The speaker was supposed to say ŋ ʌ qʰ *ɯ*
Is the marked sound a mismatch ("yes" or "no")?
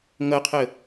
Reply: yes